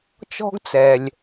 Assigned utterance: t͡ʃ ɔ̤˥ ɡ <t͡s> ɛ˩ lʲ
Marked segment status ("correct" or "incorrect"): correct